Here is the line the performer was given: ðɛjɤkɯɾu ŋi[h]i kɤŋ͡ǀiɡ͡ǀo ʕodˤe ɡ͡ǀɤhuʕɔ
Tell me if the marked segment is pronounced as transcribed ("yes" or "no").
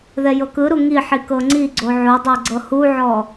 no